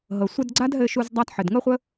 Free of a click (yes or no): no